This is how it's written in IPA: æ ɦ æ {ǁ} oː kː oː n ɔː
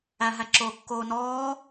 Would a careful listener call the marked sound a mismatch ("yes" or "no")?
no